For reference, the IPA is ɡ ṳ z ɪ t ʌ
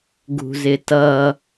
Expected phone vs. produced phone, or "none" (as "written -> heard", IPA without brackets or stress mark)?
none